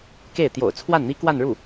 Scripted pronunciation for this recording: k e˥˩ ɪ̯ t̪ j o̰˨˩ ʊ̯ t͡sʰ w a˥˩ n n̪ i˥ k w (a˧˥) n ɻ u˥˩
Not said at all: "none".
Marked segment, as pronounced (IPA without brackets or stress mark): a˥˧